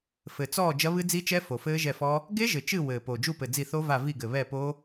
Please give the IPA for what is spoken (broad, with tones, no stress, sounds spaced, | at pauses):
f ɘ˨˩ t͡s ɔː˦˨ d͡ʒ ɐ˦˥ β ɨ˦˥ d͡z i˦˥ t͡ʃ ɛ˦˥ f o˨˩ f ɘː˦˥ ʒ ɛ˦˨ f ɔ˦˥ | ɡ e˦˥ ʒ ɘ˨˩ t͡ʃ ɨ˦˨ w ɘː˨˩ p o˨˩ d͡ʒ u˦˨ p ɘ˨˩ d͡z i˦˨ θ o˦˥ v a˦˨ v i˦˨ ɡ ɘ˨˩ β ɛ˦˨ p o˦˥